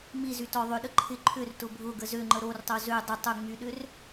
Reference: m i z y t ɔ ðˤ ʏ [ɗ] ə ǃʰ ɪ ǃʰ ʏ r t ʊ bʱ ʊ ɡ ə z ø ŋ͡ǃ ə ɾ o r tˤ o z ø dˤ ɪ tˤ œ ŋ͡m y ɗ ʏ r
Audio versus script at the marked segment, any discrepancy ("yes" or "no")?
no